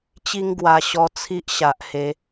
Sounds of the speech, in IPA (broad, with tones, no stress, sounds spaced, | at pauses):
t͡ɕ i˧ ŋ ɡ w a˨˩ ɕ ɔ˧ t͡sʰ i˦ ʔ ɕ a˨ ʔ h e˨˦